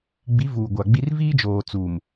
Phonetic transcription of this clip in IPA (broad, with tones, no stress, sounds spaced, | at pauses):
ɡ͡b i˨˦ v uː˨ ɡʷ a˨ ɡ͡b i˦ r v iː˦ d͡ʒ oː˨ t͡s uː˨ m